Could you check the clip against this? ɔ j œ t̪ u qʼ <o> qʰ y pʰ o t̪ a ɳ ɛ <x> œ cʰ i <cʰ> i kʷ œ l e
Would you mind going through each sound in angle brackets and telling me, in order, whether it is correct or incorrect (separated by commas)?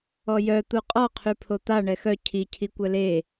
incorrect, correct, correct